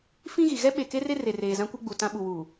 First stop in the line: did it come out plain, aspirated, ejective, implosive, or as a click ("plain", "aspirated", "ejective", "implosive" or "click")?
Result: implosive